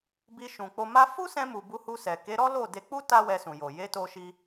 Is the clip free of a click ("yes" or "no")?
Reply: yes